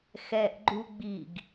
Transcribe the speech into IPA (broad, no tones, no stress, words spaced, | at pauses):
xɛʔɡ͡ǃu ɡ͡biɡ